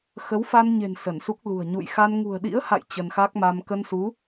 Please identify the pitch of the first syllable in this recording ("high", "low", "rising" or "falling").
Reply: rising